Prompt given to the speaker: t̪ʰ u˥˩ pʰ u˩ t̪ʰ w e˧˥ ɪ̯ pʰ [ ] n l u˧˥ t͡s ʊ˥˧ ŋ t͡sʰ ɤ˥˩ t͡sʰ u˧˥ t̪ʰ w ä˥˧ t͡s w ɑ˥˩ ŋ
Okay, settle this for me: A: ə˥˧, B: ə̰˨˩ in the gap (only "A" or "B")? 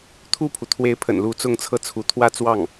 B